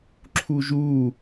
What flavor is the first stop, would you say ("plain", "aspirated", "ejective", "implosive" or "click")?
click